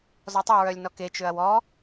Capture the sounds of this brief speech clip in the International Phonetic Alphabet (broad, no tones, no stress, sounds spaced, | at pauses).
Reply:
z ɔ tˤ o ɹ œ lʲ n ɔ k e t͡ʃ ø ɐ̯ w ɔ